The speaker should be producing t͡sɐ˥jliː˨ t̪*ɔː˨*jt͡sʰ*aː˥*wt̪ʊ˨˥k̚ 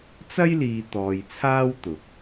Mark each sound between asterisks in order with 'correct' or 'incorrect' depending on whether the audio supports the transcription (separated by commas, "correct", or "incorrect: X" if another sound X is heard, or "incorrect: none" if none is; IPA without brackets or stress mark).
correct, correct